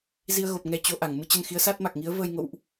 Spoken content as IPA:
z i˧ ə̯ ɣ o˨˩ p̚ ŋ ɛ˨˦ t͡ɕ o˨˦ ʔ a˧˩ ŋ m ɨ˧ t͡ɕ ə˧ n x i˨˦ ə̯ s a˦˥ t̚ m a˨˩ k̚ ŋ i˨˦ ə̯ v əː˧ j ŋ o̰˧˨ w ʔ

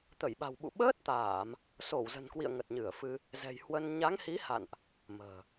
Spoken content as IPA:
t̪ ə˧˩ j ɓ a̤˨˩ w ɓ ṵ˧˨ ɓ əː˦˥ t̚ t̪ aː˧˩˨ m | s o˧˩ w z ə̤˨˩ n k w ḭ˧˨ ə̯ ŋ ə˨˩ t̚ ɲ ɨ˧˩ ə̯ f ɨ˧ | z ɛ̤˨˩ j h w ə˧ n ɲ a˨˦ ŋ h i˨˦ h a̰˧˨ n ʔ | m ə̤ː˨˩

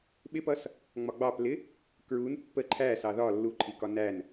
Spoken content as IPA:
ɓ ɪ p ʌ s | ŋ͡m ɒ ɡ͡b ɑ p l ɪ | k ɹ u n pː ə ǃʰ æ s ɑ ð ɒ lː u ǃʰ i k ɒ n æ n

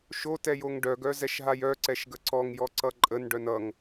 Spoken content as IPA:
ʃ o t ɛ j o ŋ ɖ œ ɡ œ z ɛ ʃ ɦ a j œ ǀ ɛ ʃ ɡ ə ǀ ɔ ŋ j ɔ ǀ ʌ ǃʼ ə n ɖ œ n ʌ ŋ

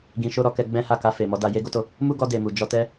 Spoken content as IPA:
ɡ ĩ˧ ʃ o˦ ɾ ɔ˦ k ɛ˧ ɡ͡b ɛ̃˦ h a˦˨ k a˧ f e˨ m ɔ˨˦ d a˧ j e˦ ɡ o˦ t o˦˨ | m u˦ ɡ ɔ˧ d e˨ m u˨ d͡ʒ ɔ˧ t ɛ˦

